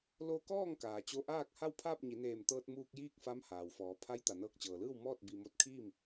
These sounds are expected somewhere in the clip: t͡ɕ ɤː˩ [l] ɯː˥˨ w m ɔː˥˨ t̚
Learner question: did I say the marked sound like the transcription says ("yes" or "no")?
yes